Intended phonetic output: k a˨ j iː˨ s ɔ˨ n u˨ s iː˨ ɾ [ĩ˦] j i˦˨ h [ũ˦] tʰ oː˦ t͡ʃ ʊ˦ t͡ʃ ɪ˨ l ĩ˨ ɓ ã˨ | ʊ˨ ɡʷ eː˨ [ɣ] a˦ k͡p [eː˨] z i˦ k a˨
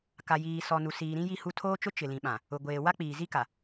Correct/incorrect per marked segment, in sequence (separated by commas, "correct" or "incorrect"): correct, incorrect, incorrect, incorrect